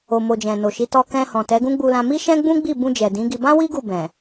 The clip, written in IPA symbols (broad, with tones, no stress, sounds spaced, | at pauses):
o˨ m o˨ d͡ʒ ɛ̃˨ n o˨ ʃ i˨˦ t ɔ˧ k ɛ̃˧ h ɔ̃˨ t ɛ˨˦ ɡ ũ˦ ɡ͡b u˧ l ã˧ m i˦ ʃ ɛ̃˦ ɡ͡b ũ˦ ɡ͡b i˦˨ b ũ˧ d͡ʒ ɛ˨ d ĩ˨˦ ɡ i˧ b ã˦ w i˦ ɡ u˦˨ b ɛ̃˨